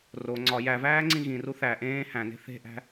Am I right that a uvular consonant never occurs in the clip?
yes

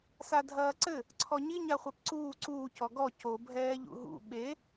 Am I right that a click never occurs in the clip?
no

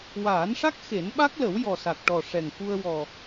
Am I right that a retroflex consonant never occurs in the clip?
no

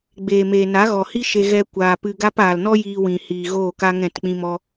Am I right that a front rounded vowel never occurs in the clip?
yes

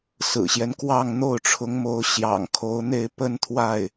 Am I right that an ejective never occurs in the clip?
yes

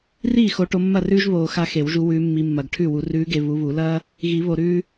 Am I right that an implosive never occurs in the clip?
yes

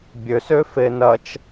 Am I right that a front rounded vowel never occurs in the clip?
no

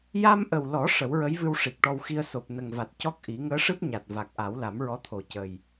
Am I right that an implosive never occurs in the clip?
yes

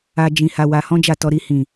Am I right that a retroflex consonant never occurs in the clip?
yes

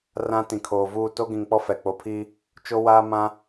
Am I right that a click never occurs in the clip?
yes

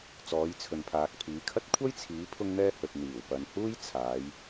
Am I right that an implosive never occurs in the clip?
yes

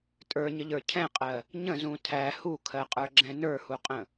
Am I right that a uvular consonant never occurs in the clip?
no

